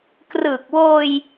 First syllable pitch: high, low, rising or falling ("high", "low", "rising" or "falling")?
low